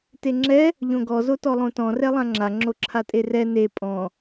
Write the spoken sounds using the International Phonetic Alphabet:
t e ŋ͡ǁ ɛ | ʎ õ ɡ ɔ z o t ɔ lˠ õ t ɔ̃ r ɛ lˠ ã ŋ͡ǁ a ŋ͡ǁ o ǁʰ a tʼ e r ɛ n e pʼ ɔ̃

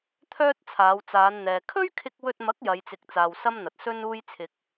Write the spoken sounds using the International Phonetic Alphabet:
t̪ʰ œː˥ t̚ t͡sʰ aː˨˧ w t͡s aː˨˧ n n̪ ɛː˨ kʰ ɵ˥ ɥ kʰ ɪ˧ k̚ w ɵ˧ t̚ m ɐ˨˥ k̚ j ɐ˨˧ j t͡s ɪ˨˥ k̚ t͡s aː˨ w s ɐ˥ m n̪ ɐ˨ t̚ s ɵ˥ n uː˥ j t͡sʰ ɪ˧ k̚

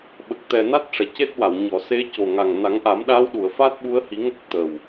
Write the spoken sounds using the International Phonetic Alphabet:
ɓ ə˨˩ k̚ t̪ ɛ˨˩ n a˦˥ t̚ ʂ ɛ˨˩˨ c e˦˥ t̚ w a˨˩˨ w ɲ ɔ˨˩˨ s e˧˥ c o˨˩ ŋ a˨˩ ŋ n a˨˩˦ ŋ ʔ a˨˩˦ m ɗ a˧˥ w ɗ u˨˩˨ ə̯ f a˦˥ t̚ ɓ u˧˥ ə̯ h i˨˩˦ ŋ ə˦˥ k̚ t̪ ə˨˩ w

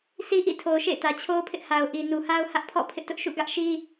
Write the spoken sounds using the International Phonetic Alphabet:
s i˦ ʔ ḭ˦˨ tʰ o˨ ʊ̯ ʃ ḛ˦˨ ɪ̯ t ä˨ t͡ɕʰ o˦ ʊ̯ pʰ ɪ˦ ʔ h a˨ ʊ̯ ʔ i˨ n u˨ h a˦ ʊ̯ h ä˦ ʔ pʰ ɔ̰˦˨ pʰ ɪ˦ ʔ t ʊ˦ ʔ ʃ ṵ˦˨ ɡ ä˦ ʔ ʃ i˦

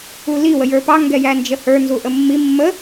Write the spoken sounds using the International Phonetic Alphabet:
u l i w ə j ə˞ p ɑ ŋ ɡ ɛ j æ n d͡ʒ ə h ə˞ n z u ʔ ə mː i mː ə

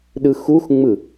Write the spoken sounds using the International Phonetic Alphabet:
ɗ ɯ x u x ŋ͡m ɯ

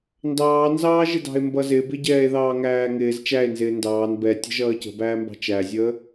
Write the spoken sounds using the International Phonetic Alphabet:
n d ɑː n z ɑː ʒ ɪ d ɑ̤ e̯ m b ʌ z ɪ b ɪ ɟ ɛː e̯ ð ɑː ŋ æː ŋ ɪː z t͡ʃ æ e̯ n z ɪː n d ɑː n b ɛ tʲ ə̤ ʒ ʌː c ə̤ b æː m b ɑ̤ t͡ʃ æ zʲ əː

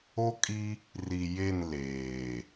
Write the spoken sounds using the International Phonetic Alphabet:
o˦ kʼ i˦ | r i˨ j e˦˨ n l eː˨

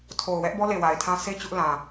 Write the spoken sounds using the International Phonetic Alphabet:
tʰ o˨ ʊ̯ w ɛ˦ ʔ b ɔ˦ l e˨ w a˨ ɪ̯ tʰ ã˦ s e˦ t͡ɕ ʊ˦ ʔ l ã˨

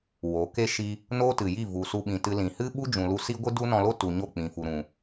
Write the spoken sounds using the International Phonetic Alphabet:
w o˨˦ k e˦ ʃ i˧ | n oː˦ t ɨ˨ j i˦˨ v u˨ s u˧ ɓ ĩ˨ t ɨ˧ l ĩ˨ h ɨ˦ ɓ u˦ d͡ʒ ũ˨ l u˧ s i˦ ɡʷ ɨ˦ d u˦ n ɔ̃˧ l o˦ t u˨ ɲ o˦˨ k͡p ĩ˨ f u˨ ɾ ũ˨

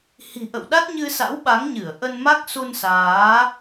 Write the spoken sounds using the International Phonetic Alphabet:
h i̤˨˩ ʔ ə̰˧˨ w ɗ a˦˥ t̚ ɲ ɨ˧ s a̰˧˥ w ɓ a˨˦ ŋ ɲ ɨ˧˩ ə̯ ʔ ə˧ n m a˦˥ k̚ s u˧ n s aː˨˦

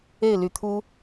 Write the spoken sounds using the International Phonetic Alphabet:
e˥˩ ɪ̯ l y˧˥ t̪ʰ u˥

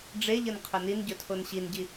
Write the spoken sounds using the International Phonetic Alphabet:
ɖ͡ʐ e ʎ ə n qʰ ɵ n i n ɟ ɵ tʰ o n ɕ i n ɟ i

